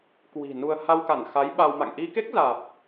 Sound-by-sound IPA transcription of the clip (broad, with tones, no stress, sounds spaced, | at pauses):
k w i̤˨˩ n u˧ ə̯ h a˧ w k a˧˩ n x a˨˦ j ɓ a˧ w m a̰˧˨ ŋ ʔ i˧ k e˦˥ k̚ z aː˨˩ p̚